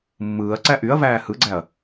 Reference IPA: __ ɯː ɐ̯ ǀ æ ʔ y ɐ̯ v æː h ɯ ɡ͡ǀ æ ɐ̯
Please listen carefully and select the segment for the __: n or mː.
mː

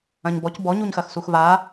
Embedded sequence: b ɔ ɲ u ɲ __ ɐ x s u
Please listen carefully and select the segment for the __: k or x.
x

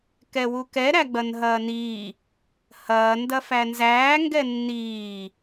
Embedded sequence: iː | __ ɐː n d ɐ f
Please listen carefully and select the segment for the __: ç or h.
h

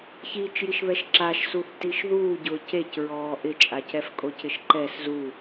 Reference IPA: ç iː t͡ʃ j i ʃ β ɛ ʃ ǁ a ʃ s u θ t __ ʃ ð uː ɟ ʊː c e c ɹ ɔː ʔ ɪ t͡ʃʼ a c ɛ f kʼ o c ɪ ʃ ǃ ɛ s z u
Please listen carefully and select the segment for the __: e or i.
i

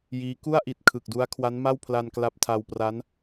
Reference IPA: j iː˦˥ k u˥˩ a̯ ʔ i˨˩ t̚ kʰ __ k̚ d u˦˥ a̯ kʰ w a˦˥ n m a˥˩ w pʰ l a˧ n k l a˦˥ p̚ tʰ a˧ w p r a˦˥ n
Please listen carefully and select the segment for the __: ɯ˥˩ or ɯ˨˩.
ɯ˨˩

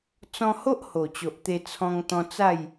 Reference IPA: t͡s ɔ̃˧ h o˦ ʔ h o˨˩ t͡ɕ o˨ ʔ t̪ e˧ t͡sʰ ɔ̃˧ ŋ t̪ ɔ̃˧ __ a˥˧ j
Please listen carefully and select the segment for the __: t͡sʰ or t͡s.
t͡s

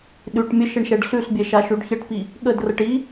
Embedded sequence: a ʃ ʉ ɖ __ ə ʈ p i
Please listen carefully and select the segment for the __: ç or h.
ç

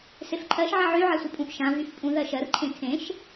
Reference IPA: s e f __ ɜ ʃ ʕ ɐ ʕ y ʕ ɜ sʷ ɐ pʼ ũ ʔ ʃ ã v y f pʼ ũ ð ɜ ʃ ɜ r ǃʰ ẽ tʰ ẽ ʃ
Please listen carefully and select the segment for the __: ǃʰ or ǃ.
ǃʰ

